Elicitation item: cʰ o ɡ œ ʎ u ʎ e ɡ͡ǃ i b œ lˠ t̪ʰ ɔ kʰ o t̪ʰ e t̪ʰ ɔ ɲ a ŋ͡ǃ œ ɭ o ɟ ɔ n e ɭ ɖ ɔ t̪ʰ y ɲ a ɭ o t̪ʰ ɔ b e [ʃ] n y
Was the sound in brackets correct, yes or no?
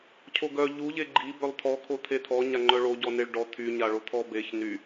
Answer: no